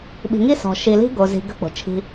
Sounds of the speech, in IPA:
ɓ i̤˨ ŋ i˦ s ɔ̤˨ ʃ i˨ l i̤˦ ɡ o˨ z i̤˨ ɡ ə̤˦ k͡p o̤˨ t͡ʃʰ i̤˦

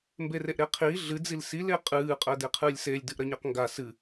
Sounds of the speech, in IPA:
m b e r e ʔ ɾ e qʰ iː ɮ ɨ d͡z i l s i l e qʼ ɨː qʼ ɜ d e qʰ ɨː lʲ s e lʲ d ɨ ʔ ɾ ɜ ɲ ɜ q ŋ ɡ a s ɨ

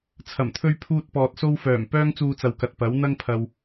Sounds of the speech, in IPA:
t͡sʰ ɐ˨˩ m t̪ʰ ɵ˧ ɥ pʰ uː˥ t̚ p ɔː˧ t̚ s o˥ w f œː˨˩ m p œː˥ ŋ t͡s uː˧ t͡s ɐ˨ w k ɐ˨ t̚ p ɐ˨˥ w n̪ ɐ˥ ŋ pʰ ɐ˨ w

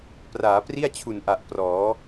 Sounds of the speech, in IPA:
p r aː˩˦ p r i˥˩ a̯ t͡ɕʰ u˨˩ n ʔ a˨˩ ʔ p r ɔː˩˦

